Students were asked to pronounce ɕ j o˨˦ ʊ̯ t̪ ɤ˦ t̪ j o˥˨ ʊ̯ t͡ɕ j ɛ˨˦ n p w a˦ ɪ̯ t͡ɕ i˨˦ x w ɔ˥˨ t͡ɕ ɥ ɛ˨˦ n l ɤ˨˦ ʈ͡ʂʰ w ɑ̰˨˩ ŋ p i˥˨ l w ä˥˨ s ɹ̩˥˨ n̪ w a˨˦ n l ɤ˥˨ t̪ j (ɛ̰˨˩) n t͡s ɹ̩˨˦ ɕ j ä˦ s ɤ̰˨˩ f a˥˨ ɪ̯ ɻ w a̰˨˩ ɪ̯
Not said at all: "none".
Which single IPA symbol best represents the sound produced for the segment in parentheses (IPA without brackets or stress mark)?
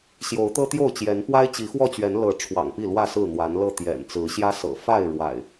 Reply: ɛ̰˨˩